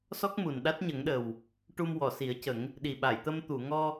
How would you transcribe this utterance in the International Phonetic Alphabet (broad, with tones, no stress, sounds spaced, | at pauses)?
s ɔ˦˥ k̚ m u˨˩ n ɗ a˦˥ t̚ ɲ ə˨˩˦ ŋ ɗ ə˨˩ w | ʈ u˧ m w ɔ˨˩˨ s i˨˩˦ ə̯ c ə˨˩˦ ŋ | ɗ i˨˩ ɓ a˨˩˨ j t̪ ə˧ m t̪ u˨˩˨ ŋ ɔ˧